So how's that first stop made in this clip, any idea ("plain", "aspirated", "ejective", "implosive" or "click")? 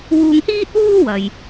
plain